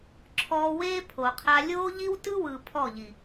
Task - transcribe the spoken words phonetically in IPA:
ǁʰɔː˧weː˦ pʰo˨qʰa˧ lʲoː˦ ʎi˦w tɯ˦wɯ˨ pʰɔ˦˨ʎi˨

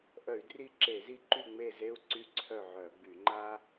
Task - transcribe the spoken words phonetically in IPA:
ʔœ˧˩˧y̯dri˦˨ǁe˧˩˧zi˦ ǃy˦˨ŋ͡me˦˨ze˦u̯ ǀy˦ǀʰœ˦˨ʕœ˧˩˧ɡ͡by˧˩˧ ŋ͡ǃa˦

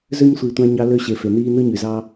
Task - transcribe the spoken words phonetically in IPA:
zø˦ɲsʷi˨tʷæ̃˧ɲɑ˧ lø˧ɕe˨ fe˨niː˦ nɯ˦ɲy˨zɑ˦

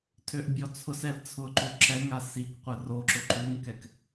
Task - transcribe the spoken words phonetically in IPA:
tʰøʔbʲɔt͡sʰʊsɛl t͡sʰʊǃo ǁɛŋa sikqʷə roǁʊ ǃuŋkɛk

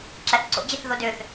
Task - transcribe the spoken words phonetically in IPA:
ǁæθǀo̰d͡ʑeθ ðodøθ

